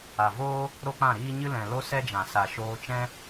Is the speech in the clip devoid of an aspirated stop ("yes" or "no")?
yes